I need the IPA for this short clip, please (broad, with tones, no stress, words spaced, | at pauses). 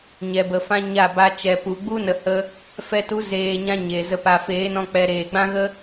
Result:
ɲɛ˨bə˨˦fã˦ɲa˦˨ ba˧t͡ʃɛ˨ pu˨ɡ͡bu˦ nə˨hə˧ | fɛ˧tu˨˦zeː˨ ɲã˦ɲe˨ zə˨pa˨feː˨˦nɔ̃˧ k͡pɛ˧ɾeː˨ ɡ͡bã˦ɣə˦